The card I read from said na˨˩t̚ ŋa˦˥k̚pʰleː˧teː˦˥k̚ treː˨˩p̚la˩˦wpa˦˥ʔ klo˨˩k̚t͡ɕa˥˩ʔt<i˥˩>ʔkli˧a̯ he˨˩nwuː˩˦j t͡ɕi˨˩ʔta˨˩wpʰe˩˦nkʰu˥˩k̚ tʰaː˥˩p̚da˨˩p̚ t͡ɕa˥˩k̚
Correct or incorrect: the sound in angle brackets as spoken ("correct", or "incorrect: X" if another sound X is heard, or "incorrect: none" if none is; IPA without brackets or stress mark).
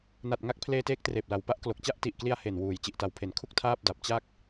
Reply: incorrect: i˨˩